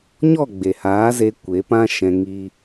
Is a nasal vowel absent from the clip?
no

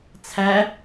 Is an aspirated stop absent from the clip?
no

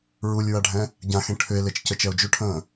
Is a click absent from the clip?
yes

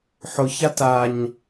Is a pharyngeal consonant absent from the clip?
no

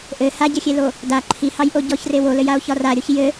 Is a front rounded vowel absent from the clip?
yes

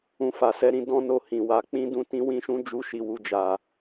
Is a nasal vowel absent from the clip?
no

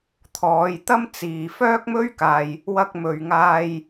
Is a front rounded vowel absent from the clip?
no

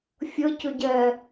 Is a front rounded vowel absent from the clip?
no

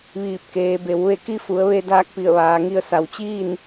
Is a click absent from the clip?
yes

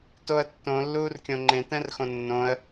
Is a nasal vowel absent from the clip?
no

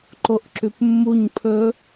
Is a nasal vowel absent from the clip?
yes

